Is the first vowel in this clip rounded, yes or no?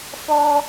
yes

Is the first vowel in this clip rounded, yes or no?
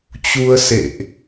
yes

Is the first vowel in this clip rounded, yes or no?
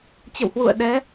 no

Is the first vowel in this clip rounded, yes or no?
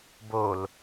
yes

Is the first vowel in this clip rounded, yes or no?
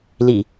no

